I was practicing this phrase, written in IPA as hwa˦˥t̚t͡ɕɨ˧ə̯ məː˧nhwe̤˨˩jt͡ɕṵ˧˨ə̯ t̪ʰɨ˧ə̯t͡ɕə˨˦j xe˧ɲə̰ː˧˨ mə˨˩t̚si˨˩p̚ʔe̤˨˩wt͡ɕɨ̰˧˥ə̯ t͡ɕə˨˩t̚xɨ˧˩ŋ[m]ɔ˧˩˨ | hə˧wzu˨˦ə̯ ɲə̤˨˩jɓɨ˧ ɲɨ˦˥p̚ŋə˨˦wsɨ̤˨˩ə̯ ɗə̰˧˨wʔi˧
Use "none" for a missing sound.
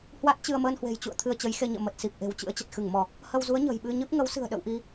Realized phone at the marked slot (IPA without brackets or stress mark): m